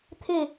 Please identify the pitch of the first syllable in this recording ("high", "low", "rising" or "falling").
falling